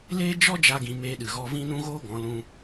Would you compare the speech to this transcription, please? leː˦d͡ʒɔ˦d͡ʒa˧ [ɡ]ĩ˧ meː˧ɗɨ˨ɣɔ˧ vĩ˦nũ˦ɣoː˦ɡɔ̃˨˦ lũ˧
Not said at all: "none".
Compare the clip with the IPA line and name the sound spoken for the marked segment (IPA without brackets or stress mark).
ɡ